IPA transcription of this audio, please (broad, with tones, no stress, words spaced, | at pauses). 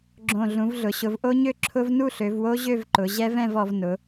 ɡ͡ǁõ˨˩ɮũ˩˧vɮʊ˩˧ɕʊ˩˧v ʔo˦˥ɲø˥˧ǁʰʊ˦˥v nu˥˧ɬø˩˧vwo˦˥ ʑø˥˧vǃʊ˩˧ ʑɛ˦˥vɛ̃˥˧vɔ˩˧v nʊ˩˧